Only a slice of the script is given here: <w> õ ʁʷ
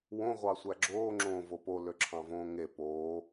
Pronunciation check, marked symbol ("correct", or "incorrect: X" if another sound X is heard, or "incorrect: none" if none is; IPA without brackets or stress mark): correct